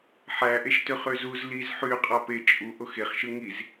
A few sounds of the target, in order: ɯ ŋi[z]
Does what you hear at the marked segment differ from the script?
no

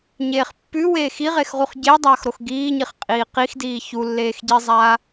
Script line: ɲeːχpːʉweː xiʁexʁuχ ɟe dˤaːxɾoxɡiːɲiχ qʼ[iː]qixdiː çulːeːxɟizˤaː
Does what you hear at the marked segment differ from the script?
no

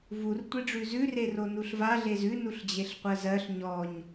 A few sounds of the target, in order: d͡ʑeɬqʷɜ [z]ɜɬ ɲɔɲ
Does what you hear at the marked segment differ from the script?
no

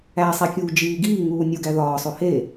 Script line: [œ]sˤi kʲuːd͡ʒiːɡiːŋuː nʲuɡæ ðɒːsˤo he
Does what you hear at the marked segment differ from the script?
yes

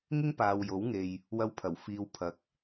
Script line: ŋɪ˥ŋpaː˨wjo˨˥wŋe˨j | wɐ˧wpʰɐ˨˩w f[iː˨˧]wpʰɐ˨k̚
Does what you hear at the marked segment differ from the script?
no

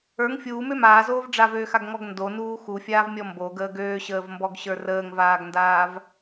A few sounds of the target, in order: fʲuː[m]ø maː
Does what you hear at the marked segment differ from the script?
no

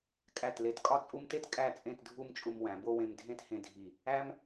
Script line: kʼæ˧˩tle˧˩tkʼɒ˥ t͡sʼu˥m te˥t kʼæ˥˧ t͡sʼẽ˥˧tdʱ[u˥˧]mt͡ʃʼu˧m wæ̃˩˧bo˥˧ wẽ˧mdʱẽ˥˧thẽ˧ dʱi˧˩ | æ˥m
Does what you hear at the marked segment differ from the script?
no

